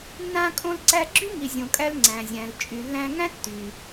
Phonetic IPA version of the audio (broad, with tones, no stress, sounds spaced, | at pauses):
nː ã˧ kʼ õ˧ l ǀ æ˧ ɡ͡ǁ y˥ ŋ i˩ zʲ õ˩ kʼ æ˧ l ŋ͡ǀ æ̃˩ zʲ æ̃˩ l t͡ʃʼ y˩ lː æ̃˧ ŋ æ̃˥ tː y˩